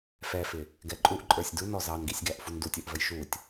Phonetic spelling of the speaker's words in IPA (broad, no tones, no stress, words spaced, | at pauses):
fɛfɪ | ɡɛǃʼuʔǃʼə˞sʲ dunɔ zɑnɡisʲɡæʔ fundutʲə˞ʔvəj ʃutʲ